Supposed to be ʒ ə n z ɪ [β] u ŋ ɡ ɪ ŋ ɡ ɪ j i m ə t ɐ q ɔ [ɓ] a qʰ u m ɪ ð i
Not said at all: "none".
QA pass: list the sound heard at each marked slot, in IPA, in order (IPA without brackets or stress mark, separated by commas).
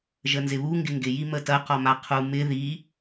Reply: β, m